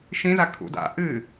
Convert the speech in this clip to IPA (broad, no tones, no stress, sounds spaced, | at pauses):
ʃ ĩ z a kʰ ṵ d a̰ ʔ ɨ